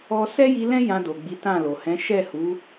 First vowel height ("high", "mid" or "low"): mid